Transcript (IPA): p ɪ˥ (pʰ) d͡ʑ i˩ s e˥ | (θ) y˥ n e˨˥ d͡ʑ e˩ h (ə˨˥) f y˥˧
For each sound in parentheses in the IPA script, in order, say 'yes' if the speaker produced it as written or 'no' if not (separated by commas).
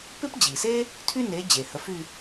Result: no, no, yes